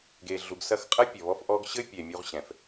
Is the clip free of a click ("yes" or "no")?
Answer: yes